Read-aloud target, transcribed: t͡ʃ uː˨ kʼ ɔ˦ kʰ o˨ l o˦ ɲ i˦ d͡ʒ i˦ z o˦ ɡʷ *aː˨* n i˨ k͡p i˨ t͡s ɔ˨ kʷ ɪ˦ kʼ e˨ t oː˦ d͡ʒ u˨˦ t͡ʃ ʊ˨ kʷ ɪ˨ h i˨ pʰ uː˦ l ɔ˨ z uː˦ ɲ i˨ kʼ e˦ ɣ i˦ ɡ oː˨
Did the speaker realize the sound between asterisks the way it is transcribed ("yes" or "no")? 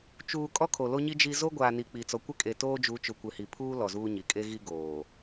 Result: yes